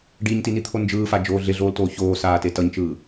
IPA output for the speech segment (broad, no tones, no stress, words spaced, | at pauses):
ɖiɲtinit̪ʰo nd͡ʒɯːfad͡ʒoː ɮeɮoːltoː çoːsaːte tʌɲt͡ʃɯː